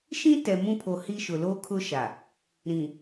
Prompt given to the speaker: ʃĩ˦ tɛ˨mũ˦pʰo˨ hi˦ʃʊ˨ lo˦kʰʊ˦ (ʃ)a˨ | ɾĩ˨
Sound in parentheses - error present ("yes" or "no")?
no